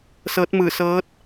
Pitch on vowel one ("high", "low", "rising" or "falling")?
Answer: rising